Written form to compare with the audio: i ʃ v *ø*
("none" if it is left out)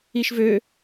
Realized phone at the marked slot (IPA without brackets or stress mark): ø